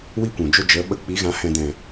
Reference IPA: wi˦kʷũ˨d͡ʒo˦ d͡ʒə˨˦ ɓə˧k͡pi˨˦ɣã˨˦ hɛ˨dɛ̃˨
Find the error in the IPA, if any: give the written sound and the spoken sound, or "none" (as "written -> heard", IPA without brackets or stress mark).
ɛ˨ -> ɛ̃˨